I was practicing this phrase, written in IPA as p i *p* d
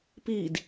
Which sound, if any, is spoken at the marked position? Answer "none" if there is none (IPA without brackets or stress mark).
none